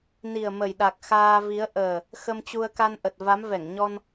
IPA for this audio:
n i˨˩ ə̯ m ə˨˩ j ɗ a˨˩ k̚ x aː˧ v i˨˦ ə̯ ʔ əː˨˩ | x ə˧ m t͡ɕ u˧ ə̯ k a˧ n ʔ ə˨˩ t̚ v a˨˦ m v ɛ˧˩ ŋ ɲ ɔ˧ n

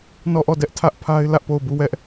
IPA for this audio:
n ɔ˦˨ ʔ ɔ˦˨ d ɛ˦ ʔ tʰ ä˦ ʔ pʰ a˦ ɪ̯ l ä˦ ʔ p o˦˨ ʊ̯ b u˦˨ w ɛ˦ ʔ

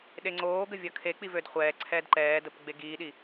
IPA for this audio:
ɗ e ŋ͡ǀ oː ɡ ə vʲ ʌ kʰ e k͡p i v ø d χʷ ɛː ǀʰ ɛː d ǃ ɛː d ə p ɡ͡b e ɡ iː ɗ i

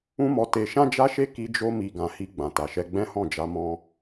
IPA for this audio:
ũ˦ m ɔ˧ t e˧ ʃ ã˦ d͡ʒ a˦ ʃ e˦ k i˧ d͡ʒ o˧ m i˨ ɡ ã˨ h i˧ ɡ͡b ã˨ t a˨ ʃ ɛ˧ ɡ͡b ɛ̃˦ h ɔ̃˦˨ d͡ʒ a˧ m ɔ̃˦

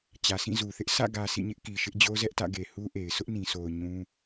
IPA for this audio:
t͡ɕ ä˨ s ĩ˦˨ z u˨ θ ɪ˦ ʔ s ä̰˦˨ ɡ ä˨ sʰ ḭ˦˨ ɲ ɪ˦ ʔ k i˨ ʃ ɪ˦ ʔ d͡ʑ o˦ z ɛ˦ ʔ t ä̰˦˨ ɡ e˨ h u˦ ʔ e˨ ɪ̯ s ʊ˦ ʔ n ĩ˨ s o˨ ʊ̯ ɲ ũ˦

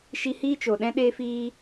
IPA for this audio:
ʃ i˧ h iː˦ t͡ʃ o˨ ɗ ɛ̃˦ ɗ eː˧ f iː˧

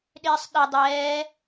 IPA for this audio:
ɗ ɪː sˤ ɗ i dˤ ɛː

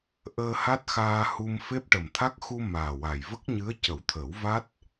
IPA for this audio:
ʔ əː˧ h a˦˥ t̚ x aː˧ h u˧ m f e˦˥ p̚ ʈ ə˨˩ m t̪ʰ a˦˥ k̚ x u˧ m aː˨˩ w a˨˩ j v ə˦˥ k̚ ɲ ɨ˧˥ ə̯ c ə˨˩˦ w t̪ʰ ə˨˩˦ w v a˦˥ t̚

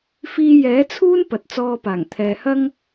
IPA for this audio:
f iː˧ j ɛː˨˥ t͡sʰ uː˥ n p ɐ˨ t̚ t͡s ɔː˧ p aː˨˩ ŋ t̪ʰ ɛː˨ h ɐ˥ ŋ

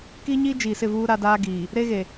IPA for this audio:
k iː˦ ɲ iː˦ d͡ʒ iː˨ s ɪ˦˨ v uː˦ ɾ a˦ d aː˦ ɡ iː˨ | ɾ e˦ ɣ e˨

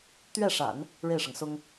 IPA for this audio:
t̪ ɥ ɛ˥˩ ʂ a̰˨˩˦ n | ɻ e˥˩ ɪ̯ ʂ ɤ˩ ŋ s ʊ˥ ŋ

